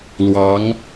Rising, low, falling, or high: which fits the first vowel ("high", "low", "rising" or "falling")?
rising